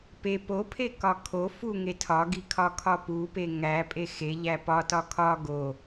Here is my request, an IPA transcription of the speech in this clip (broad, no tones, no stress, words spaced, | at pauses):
pe popʰe kɒkʰo fuŋe tʰɒɡikʰɒ kʰɒpupe ŋæ pʼexeʎæ pɒ tɒkʰɒ ɡo